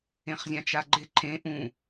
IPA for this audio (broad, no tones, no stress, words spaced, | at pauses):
ẽχzʲãt͡ʃaɡ͡ǃɪ ǃʰẽ ʔũ